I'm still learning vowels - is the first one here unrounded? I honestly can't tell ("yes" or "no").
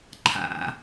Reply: yes